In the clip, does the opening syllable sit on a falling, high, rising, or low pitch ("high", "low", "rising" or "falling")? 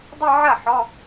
falling